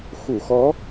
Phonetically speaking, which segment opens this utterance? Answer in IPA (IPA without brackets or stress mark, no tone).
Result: x